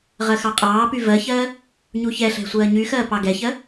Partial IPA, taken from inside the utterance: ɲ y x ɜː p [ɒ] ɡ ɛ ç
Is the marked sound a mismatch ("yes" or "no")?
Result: yes